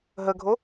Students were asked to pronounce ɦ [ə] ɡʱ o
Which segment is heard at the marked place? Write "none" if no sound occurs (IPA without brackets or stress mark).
ə